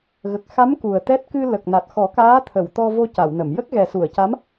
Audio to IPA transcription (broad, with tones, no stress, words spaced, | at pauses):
ɣə˨˩k̚xa˧˥m ku˨˩ə̯t̪ɛ˦˥t̚ kɨ˧ lə˨˩k̚na˨˩t̚xɔ˨˩˦ kaː˧˥t̪ʰə˨˩˨wt̪ɔ˧vo˧ ca˨˩˨wnə˨˩˨m jə˦˥k̚ɣɛ˨˩su˨˩˨ə̯ca˧˥m